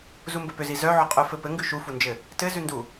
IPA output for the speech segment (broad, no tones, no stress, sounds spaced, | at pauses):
z u m b ɘ p ʏ z i z œ ʕ ɔ qʼ œ f ɘ p ɘ ŋ ɡ ʉ ʃ u f u n d͡ʒ ɘ | t ɘ z ʉ n d u